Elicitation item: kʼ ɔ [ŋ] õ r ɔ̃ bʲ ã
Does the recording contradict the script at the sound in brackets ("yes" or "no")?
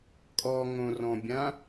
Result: no